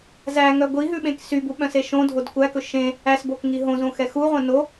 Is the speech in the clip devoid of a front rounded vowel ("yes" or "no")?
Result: no